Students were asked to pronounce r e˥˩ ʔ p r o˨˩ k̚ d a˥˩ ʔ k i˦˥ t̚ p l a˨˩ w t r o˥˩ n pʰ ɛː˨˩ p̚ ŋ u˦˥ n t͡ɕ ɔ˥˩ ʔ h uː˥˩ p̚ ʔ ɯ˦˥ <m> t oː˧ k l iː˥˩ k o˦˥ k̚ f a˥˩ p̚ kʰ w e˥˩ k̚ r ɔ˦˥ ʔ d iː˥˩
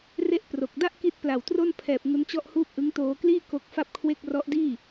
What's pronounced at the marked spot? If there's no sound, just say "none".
ŋ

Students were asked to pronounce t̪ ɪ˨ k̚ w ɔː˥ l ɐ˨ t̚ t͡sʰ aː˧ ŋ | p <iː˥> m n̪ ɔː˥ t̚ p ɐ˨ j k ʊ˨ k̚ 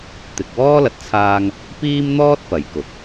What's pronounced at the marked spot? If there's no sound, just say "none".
iː˥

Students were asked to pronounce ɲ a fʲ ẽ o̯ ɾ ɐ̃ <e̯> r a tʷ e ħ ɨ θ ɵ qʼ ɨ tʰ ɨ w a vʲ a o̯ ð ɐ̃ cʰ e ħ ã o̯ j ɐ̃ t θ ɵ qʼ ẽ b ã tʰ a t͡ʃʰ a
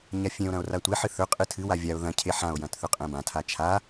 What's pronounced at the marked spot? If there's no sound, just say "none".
o̯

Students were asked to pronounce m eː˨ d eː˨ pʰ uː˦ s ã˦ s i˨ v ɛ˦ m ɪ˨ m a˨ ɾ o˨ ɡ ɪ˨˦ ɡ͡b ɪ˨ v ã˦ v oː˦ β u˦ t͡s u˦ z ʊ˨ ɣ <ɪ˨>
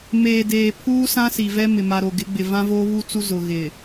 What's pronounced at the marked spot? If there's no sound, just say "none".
ɪ˨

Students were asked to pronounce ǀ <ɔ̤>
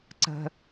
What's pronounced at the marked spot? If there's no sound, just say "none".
ə̤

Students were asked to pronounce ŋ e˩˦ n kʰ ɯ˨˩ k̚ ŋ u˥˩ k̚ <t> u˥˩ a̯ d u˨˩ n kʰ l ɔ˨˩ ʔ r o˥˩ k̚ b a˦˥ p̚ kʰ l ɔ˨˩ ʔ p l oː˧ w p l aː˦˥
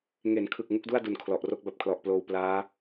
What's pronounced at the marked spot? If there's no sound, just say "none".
d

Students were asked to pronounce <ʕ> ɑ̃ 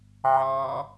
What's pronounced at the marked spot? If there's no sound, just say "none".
ʕ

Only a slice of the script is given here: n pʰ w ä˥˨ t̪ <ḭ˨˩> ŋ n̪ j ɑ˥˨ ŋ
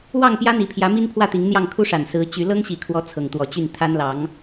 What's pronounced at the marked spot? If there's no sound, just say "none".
i˨˦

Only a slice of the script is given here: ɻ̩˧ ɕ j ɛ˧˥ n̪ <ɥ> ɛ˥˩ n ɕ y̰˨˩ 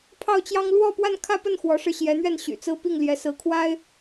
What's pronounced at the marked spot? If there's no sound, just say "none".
ɥ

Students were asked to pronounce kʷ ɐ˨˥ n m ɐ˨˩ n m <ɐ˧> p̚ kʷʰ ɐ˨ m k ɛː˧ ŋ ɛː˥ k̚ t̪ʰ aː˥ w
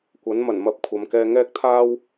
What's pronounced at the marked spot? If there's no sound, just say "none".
ɐ˧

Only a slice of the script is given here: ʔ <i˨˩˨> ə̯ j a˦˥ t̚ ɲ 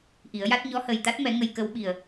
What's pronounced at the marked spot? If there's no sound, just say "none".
i˨˩˦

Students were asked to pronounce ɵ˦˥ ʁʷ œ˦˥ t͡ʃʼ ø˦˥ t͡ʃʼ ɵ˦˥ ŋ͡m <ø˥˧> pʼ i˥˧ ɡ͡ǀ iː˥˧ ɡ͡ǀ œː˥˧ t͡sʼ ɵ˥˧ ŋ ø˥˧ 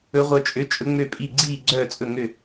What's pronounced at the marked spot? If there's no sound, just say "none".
ø˥˧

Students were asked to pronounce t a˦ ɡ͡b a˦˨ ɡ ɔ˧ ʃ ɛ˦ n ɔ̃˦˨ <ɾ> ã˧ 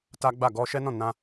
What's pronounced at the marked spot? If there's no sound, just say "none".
n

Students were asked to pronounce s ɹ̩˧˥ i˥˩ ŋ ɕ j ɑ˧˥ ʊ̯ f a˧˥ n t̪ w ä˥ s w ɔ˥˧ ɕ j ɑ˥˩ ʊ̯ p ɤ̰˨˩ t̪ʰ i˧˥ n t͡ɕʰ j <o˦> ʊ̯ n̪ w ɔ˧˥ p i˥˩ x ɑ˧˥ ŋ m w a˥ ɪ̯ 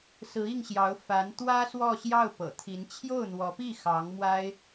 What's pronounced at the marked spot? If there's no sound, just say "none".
o˥˩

